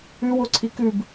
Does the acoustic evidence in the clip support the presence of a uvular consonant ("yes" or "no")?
no